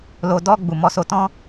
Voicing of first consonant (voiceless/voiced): voiced